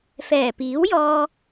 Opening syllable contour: low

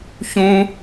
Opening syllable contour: high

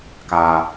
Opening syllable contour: low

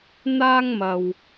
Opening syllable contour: high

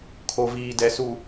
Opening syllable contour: low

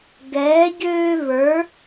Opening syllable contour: rising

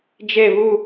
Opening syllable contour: falling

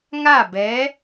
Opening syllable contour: falling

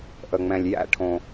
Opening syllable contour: low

